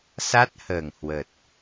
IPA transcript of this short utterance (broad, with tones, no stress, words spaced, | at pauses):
sa˦˥t̚həː˨˩ŋhwə˨˩t̚